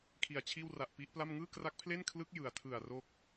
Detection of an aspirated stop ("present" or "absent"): present